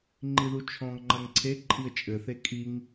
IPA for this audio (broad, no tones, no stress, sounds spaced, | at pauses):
ŋ͡ǃ i ð u t͡ʃʰ ɔ̃ ŋ ŋ͡ǃ ɐ ŋ ǀʰ e ǃʼ i ə̯ t͡ʃʼ ɘ θ e kʼ i ŋ